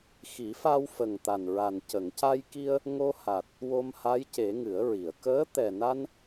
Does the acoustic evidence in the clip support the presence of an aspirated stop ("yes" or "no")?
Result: no